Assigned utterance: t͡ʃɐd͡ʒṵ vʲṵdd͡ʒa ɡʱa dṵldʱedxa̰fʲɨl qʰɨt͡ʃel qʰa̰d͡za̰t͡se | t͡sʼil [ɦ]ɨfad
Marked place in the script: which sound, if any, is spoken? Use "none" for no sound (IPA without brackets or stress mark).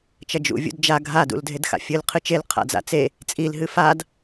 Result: ɦ